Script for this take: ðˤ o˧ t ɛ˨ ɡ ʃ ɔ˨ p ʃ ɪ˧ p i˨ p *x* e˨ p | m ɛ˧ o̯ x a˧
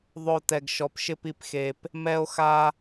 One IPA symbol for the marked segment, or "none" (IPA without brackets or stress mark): x